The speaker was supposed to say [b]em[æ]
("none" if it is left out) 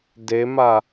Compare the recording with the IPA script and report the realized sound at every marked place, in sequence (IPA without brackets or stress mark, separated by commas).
d, a